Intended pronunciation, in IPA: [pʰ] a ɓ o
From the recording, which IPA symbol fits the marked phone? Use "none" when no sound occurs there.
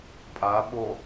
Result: pʼ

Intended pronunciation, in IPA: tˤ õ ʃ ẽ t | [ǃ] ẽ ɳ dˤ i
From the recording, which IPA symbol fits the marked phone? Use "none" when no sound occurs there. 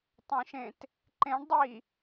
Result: ǃ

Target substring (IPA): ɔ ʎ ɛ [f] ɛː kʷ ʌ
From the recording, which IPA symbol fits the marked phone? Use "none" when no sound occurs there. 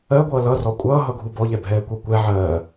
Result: bʱ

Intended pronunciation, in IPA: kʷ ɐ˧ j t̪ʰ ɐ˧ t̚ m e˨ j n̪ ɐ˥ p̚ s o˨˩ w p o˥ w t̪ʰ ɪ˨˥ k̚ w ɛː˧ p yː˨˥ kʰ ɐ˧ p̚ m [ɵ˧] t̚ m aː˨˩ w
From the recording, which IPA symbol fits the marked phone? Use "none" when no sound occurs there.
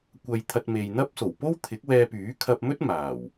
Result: ɵ˥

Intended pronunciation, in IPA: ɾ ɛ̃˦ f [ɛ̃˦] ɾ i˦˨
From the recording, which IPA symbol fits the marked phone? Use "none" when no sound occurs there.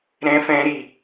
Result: ɛ̃˦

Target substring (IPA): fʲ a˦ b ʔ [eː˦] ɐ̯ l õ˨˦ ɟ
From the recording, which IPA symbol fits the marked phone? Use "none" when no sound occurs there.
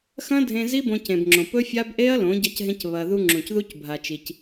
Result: e˦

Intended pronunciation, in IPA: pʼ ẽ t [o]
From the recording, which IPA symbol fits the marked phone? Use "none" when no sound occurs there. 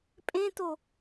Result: o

